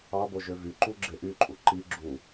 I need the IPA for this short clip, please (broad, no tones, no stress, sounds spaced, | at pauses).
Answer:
ɑ b o ʒ ø v y ǃ u ɡ͡ǁ e ʔ y ǃʼ u ǃ i ɡ͡ǁ u